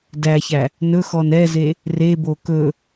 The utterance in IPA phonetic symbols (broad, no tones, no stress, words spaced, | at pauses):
dæçæ | nɵxɔn ɛze | rebo kɵ